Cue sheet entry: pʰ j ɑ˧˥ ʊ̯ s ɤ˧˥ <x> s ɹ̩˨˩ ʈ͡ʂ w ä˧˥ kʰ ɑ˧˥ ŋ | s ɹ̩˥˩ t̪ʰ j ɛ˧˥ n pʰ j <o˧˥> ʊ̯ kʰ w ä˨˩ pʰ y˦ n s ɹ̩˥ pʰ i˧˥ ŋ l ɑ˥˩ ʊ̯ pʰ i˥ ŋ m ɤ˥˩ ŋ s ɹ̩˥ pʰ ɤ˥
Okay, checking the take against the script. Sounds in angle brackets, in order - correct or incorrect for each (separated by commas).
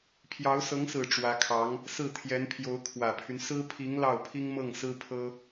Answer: incorrect, correct